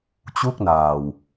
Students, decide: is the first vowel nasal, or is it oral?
oral